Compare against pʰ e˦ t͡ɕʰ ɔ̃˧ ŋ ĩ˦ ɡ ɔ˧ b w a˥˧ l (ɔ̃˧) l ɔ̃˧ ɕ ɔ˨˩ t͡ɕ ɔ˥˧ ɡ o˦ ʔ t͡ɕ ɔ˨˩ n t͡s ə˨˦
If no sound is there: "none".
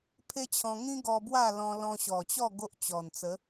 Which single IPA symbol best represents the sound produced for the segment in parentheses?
ɔ̃˧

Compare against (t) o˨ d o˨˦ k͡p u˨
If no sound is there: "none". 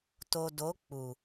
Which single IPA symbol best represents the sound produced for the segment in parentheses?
t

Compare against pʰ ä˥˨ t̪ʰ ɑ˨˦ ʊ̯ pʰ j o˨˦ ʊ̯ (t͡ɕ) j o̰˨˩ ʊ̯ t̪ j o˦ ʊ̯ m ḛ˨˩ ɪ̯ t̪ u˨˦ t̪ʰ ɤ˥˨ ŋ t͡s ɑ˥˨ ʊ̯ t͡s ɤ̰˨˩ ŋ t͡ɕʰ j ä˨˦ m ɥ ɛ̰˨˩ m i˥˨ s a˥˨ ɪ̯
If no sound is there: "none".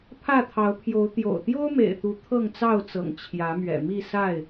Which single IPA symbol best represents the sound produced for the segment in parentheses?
t̪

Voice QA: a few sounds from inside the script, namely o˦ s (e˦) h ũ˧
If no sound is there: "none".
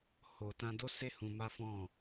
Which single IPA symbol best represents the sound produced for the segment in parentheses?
e˦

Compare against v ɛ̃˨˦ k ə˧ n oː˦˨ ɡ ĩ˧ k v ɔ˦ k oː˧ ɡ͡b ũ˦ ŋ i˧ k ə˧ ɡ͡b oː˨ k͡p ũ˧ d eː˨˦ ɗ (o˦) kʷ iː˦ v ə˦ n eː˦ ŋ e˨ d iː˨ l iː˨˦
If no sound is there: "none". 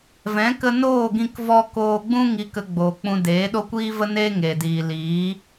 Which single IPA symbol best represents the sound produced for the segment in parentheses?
o˦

